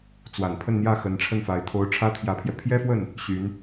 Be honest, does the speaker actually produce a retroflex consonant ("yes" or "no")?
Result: yes